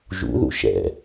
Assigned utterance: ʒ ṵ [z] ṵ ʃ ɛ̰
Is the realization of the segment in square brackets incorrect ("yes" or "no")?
yes